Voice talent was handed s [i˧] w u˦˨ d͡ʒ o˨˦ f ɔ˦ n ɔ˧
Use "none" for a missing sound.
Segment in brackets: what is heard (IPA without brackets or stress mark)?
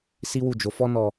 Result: i˦